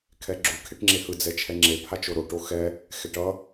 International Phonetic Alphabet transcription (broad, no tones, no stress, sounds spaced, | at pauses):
kʰ ɛ ɡ͡ǁ u kʰ e ʈ ŋ͡ǁ e h ɯ d͡z ɛ t͡ʃʰ ɛ ŋ͡ǁ e pʰ a t͡ʃ o ɾ o ʈ o x ɛ | x ɛ ʈ ʌ